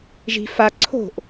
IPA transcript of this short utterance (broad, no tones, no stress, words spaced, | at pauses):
ʒi̤ fa ǀʰo̤ʔ